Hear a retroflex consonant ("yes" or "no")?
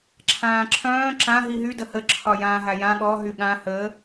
no